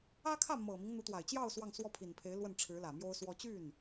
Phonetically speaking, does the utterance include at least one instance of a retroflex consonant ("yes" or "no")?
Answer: yes